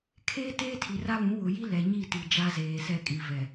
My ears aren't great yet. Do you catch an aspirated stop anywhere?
yes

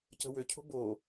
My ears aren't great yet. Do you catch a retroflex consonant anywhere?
no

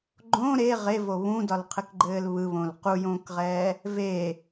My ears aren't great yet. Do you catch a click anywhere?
yes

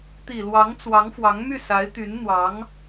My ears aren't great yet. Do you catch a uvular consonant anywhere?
no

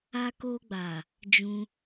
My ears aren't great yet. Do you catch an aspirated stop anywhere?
no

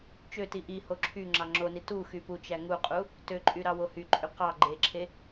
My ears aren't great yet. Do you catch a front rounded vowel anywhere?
yes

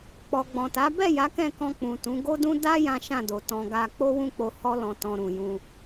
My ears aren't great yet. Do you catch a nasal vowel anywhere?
yes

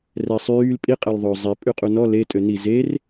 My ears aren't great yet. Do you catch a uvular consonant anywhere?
yes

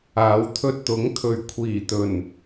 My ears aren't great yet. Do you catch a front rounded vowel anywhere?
no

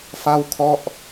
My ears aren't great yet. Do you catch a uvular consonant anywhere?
no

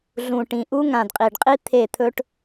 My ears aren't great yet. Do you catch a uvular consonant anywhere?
yes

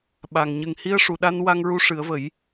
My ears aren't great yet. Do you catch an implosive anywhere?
yes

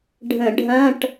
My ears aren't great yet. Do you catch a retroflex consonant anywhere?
yes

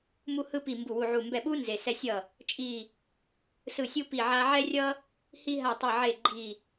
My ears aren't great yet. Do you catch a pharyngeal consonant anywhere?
yes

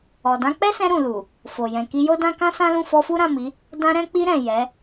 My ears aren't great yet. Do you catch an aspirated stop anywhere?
no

